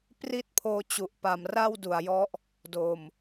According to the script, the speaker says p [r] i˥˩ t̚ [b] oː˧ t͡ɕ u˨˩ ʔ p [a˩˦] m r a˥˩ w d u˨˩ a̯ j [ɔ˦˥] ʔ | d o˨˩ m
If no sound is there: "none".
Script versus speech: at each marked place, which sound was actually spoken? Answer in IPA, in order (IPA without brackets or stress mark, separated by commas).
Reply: r, pʰ, a˩˦, ɔ˦˥